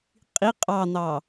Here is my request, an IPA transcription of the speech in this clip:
qʼi qʼɑn̪ɑ

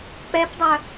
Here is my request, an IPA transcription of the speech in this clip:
k͡pɛpdˤœ

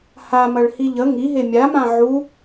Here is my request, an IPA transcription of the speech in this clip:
hamɐɭ hiʎə ŋiɦe mʲamã ʕu

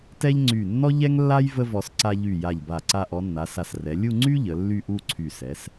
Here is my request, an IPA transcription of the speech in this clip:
tɛ˥ʎ ŋ͡ǀy˧˩ nːɔ˥ʎɛ˥ŋlːa˥j və˥vɔ˧s ǀa˧ʎy˧˩ja˧˩ʎ ba˧˩ ǀa˧ʔɔ˩˧nːa˩˧sa˧˩s rɛ˩˧ lʲu˥˧ŋ͡ǀy˥ ʎə˩˧ lːy˥˧ʔu˥˧ǀʰy˧˩ sɛ˩˧s

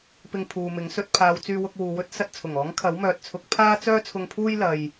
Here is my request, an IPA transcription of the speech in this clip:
pɪ˧ŋpʰuː˨mɪ˨˥ŋ sɵ˧t̚pʰaː˨˧w t͡syː˧wʊ˧k̚ wuː˨wɵ˥t̚ sɐ˧t̚t͡sʰʊ˨˩ŋɔː˨˥ŋ kʰɐ˨˥wmœː˨t̚t͡sʰʊ˨˥k̚ pʰaː˥t͡sœː˥t͡sʰʊ˧ŋpʰuː˥j lɐ˨j

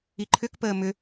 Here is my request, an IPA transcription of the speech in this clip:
iǃʰʏk pəːmʏ

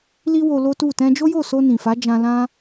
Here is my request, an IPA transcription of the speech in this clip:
li˦wo˧ lo˦tu˦˨ tɛ̃˧d͡ʒo˦jo˦˨so˧ nĩ˨fa˨˦ d͡ʒã˧lã˦

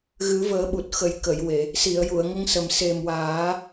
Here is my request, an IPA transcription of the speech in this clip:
ɣɨ˨˩˦vəː˨˩˦ɓu˨˩t̚xə˨˩˦j kə˨˩˨jwe˨˩˨ | si˨˩˨ə̯ju˨˩˨ə̯ŋə˧ŋ sə˨˩m se˨˩mwaː˨˩˦

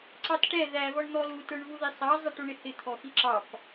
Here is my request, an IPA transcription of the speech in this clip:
ǀɑtʈɛ ðævɔɳ n̪ɔlutə˞ɳ vuðisˤɑ zˤɛʈuɳɪhɪ t̪ʰɔxiǁɑp

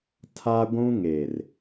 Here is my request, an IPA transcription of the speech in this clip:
tʰa˦ɡʷũ˦ŋe˨r

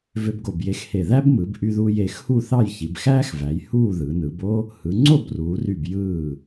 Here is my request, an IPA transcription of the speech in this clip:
vø˧bɡo˧˩bje˧xhe˧˩ ðæ˥bmɯ˩˧bʔy˧ðuː˧j e˩˧xhu˥˧θɑ˥˧j çi˩˧bxæː˥xvæ˩˧j huː˥˧ ðɯ˩˧nɯ˩˧bo˥ | hɯ˩˧ŋ͡ǀo˥˧bruː˩˧ry˧˩b jɯː˧˩

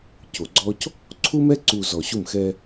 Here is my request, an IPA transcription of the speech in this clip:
co˨ɡ͡ǀɔ˦c | ǀʰu˦mɛ˦ǀu˨ zɔ˨ ɕu˦˨mxɛ˦

